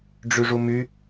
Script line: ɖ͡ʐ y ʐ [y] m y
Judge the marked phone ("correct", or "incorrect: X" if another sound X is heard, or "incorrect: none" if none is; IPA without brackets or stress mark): incorrect: u